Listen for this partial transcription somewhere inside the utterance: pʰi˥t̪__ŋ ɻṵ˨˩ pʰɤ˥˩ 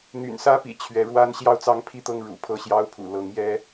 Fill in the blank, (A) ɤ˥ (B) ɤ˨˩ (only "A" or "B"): A